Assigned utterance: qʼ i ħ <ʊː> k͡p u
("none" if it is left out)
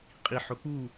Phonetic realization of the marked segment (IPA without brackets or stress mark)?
ʊː